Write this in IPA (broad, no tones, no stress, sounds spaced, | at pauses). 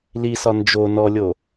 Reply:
l i s ɒ n d͡ʒ o n ɔ lʲ o